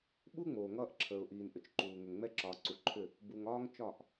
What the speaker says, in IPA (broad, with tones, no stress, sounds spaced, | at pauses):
ɓ u˦ ŋ͡m oː˨ ŋ ʌː˦ ʔ ǁʰ əː˨ ʊ̯ ʔ iː˨ n ʔ ʏ˨ t͡ʃ ǃ uː˨ ŋ ʏ˨ ŋ ŋ͡m ɛ˦ ǁ ɒː˨ ǀ u˨ ǃʰ ʏ˦˨ | b u˨ ŋ ɒː˦ ŋ t͡ʃ ɒ˦˨ ʔ